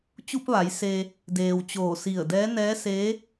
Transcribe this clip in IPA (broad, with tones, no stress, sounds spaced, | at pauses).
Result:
t͡ɕ u˧ p̚ ʋ a˩˧ j s e˧ | d eː˩ w t͡ɕ oː˧˩ s i˧˩ ə̯ d ɛː˧˥ n ɛː˧˥ s eː˧˥